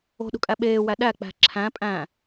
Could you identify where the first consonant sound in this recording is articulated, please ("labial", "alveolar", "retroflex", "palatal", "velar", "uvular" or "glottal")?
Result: alveolar